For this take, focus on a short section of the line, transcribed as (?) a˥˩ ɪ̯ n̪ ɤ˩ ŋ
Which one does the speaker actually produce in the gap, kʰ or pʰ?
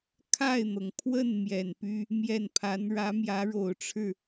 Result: kʰ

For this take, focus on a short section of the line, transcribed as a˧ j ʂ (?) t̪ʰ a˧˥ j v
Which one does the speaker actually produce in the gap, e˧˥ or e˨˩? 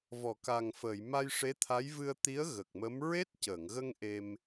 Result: e˧˥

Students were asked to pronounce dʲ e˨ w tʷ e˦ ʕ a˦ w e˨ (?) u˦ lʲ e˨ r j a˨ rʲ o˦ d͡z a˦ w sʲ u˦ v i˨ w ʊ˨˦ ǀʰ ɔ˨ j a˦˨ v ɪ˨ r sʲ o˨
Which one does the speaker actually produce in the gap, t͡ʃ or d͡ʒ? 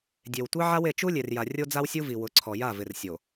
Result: t͡ʃ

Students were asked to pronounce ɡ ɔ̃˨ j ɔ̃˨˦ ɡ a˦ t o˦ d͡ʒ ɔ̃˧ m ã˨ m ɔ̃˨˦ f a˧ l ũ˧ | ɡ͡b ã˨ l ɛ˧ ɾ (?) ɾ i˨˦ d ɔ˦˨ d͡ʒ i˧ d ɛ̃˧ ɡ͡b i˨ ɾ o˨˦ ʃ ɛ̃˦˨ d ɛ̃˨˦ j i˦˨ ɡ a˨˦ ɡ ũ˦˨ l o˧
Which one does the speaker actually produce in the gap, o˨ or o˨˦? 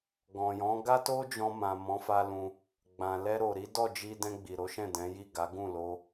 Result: o˨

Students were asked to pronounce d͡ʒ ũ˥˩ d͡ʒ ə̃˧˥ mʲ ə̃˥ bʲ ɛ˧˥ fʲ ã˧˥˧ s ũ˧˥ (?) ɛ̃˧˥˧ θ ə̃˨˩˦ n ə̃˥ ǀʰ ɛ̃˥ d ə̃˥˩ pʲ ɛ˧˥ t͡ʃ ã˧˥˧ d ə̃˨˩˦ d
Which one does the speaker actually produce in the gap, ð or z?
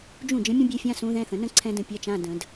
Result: ð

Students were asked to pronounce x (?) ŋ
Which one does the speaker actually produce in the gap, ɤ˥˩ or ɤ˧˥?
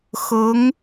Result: ɤ˧˥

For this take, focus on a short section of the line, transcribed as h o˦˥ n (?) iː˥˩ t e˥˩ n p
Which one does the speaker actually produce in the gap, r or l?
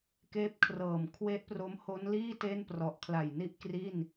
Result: l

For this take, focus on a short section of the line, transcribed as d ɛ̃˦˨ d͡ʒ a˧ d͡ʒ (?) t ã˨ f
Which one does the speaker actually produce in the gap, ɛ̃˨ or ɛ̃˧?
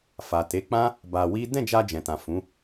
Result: ɛ̃˨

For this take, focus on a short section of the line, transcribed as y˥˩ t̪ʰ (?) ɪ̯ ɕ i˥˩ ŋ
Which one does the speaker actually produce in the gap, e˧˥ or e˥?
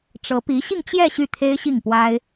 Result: e˥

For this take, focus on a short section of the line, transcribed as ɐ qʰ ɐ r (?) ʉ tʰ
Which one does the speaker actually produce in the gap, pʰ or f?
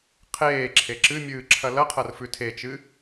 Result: f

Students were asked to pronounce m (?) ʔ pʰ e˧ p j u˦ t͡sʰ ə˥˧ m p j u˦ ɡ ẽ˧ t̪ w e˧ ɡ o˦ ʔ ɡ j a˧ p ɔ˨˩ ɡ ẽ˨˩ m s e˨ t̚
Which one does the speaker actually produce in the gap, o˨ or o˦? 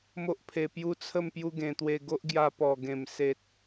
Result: o˦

